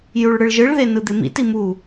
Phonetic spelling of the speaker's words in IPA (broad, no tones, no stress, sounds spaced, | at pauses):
j u ɭ ɽ ɯ ɭ ʒ ɯ ɭ ð e n ɯ d̪ e m ḭ t i m u